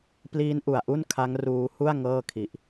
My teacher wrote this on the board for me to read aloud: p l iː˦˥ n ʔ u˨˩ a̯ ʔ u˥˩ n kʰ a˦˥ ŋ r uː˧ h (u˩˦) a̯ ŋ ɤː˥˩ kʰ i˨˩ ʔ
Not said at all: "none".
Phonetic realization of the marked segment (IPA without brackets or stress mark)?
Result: u˥˩